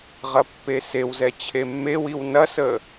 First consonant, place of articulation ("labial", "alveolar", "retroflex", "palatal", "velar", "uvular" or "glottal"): uvular